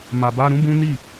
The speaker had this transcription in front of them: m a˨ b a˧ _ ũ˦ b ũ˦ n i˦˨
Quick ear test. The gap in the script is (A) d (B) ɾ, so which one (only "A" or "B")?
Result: B